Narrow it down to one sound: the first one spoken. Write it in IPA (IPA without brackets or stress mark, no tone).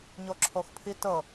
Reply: ɲ